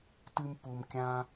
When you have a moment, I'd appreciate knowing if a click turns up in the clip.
no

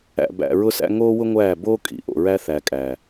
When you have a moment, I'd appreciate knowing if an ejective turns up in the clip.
yes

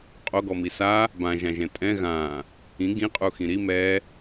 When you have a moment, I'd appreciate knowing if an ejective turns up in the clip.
yes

